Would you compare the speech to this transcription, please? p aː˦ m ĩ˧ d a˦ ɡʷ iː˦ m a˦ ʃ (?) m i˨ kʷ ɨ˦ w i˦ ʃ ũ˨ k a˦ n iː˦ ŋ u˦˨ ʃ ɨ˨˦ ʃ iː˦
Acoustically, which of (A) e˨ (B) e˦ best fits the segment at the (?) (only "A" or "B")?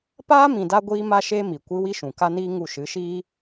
B